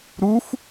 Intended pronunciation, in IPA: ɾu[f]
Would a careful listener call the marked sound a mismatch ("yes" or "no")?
no